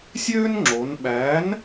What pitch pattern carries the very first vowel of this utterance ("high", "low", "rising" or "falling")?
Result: high